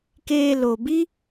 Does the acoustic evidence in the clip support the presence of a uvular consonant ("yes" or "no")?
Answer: no